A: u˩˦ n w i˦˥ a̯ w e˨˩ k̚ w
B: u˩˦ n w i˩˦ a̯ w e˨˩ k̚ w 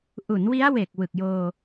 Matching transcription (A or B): A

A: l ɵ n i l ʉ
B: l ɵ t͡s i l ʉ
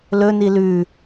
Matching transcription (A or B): A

